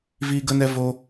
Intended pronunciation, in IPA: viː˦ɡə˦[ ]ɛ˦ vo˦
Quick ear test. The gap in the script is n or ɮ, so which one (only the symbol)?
n